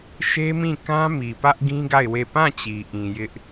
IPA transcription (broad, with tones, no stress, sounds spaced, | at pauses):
ʃ e˦ m ĩ˦˨ k ã˦ m i˨ p ä˦ ʔ ɡ ĩ˦ ɡ a˦˨ ɪ̯ w e˦˨ p ã˦˨ t͡ɕ i˨ ʔ ĩ˨ j ɪ˦ ʔ